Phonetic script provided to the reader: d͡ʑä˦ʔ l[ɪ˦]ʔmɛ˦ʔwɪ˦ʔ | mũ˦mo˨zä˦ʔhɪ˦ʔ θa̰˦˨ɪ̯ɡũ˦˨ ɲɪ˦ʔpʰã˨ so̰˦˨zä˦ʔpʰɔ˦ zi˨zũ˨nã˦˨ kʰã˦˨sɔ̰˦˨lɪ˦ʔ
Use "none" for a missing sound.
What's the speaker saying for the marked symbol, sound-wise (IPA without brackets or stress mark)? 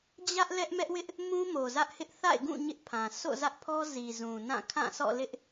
ɛ˦